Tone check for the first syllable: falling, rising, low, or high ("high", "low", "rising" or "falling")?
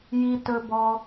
high